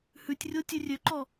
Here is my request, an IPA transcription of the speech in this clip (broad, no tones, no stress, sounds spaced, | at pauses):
h ʉ tʲ rʲ o tʲ ʉ rʲ ø ǃ ɔ